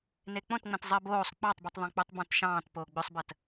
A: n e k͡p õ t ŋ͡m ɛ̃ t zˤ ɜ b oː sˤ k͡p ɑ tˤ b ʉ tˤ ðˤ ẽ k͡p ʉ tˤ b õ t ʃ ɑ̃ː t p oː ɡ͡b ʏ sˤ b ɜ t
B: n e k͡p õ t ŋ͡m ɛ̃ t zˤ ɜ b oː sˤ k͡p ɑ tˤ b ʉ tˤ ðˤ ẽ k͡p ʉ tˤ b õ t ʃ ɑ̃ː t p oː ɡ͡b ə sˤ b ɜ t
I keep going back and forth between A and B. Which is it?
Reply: A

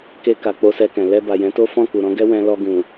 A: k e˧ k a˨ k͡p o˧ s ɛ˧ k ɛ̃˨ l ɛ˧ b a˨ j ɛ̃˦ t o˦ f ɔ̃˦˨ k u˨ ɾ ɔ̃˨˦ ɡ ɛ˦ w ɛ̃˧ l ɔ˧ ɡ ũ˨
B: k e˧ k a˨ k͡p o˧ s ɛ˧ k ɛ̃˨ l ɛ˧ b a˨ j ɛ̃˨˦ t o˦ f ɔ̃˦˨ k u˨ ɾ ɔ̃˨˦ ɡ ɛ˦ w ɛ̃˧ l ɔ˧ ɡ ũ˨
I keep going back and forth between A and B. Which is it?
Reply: B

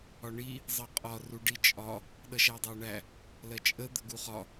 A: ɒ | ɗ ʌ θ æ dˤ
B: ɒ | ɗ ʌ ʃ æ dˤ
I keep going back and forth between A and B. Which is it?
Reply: B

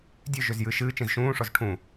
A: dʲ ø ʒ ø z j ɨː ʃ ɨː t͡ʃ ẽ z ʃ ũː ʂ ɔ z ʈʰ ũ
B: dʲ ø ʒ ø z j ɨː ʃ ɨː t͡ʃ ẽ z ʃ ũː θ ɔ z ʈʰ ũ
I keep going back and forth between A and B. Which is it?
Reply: A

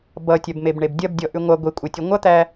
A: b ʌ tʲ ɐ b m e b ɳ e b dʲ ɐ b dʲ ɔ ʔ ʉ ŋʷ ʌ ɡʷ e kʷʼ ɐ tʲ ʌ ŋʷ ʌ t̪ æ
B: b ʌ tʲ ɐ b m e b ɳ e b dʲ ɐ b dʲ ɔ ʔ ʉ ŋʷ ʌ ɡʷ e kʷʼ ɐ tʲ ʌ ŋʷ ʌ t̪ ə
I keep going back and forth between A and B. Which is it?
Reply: A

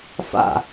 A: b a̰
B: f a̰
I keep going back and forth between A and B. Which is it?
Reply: B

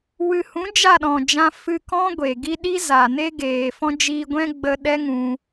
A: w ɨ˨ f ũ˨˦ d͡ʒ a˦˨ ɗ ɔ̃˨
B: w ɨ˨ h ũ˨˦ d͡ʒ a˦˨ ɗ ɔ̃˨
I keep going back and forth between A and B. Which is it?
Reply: B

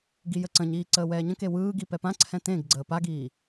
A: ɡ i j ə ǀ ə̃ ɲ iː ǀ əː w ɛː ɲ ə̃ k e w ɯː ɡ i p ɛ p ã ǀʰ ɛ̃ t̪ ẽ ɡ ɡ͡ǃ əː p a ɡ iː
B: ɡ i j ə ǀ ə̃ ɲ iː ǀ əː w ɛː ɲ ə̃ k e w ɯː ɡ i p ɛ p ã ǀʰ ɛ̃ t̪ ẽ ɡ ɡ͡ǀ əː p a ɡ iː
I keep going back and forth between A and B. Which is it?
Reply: B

